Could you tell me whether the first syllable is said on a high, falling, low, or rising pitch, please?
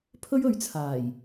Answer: high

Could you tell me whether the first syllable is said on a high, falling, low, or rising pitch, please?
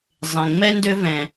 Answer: low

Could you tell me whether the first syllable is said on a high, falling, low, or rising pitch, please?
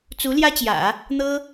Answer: rising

